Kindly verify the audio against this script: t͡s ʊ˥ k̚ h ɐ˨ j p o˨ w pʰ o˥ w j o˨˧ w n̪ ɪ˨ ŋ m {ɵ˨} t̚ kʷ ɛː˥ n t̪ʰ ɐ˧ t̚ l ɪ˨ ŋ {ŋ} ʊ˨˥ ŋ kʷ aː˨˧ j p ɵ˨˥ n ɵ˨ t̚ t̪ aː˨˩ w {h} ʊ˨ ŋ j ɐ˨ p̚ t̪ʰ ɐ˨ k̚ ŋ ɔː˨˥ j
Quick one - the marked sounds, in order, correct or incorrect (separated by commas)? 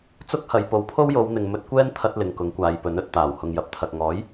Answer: incorrect, incorrect, correct